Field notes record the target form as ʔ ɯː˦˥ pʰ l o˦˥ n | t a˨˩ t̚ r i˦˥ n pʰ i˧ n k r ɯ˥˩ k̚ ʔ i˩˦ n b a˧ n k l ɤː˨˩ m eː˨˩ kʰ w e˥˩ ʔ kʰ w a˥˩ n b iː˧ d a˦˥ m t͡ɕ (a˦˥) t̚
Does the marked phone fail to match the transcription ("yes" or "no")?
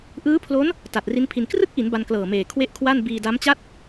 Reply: yes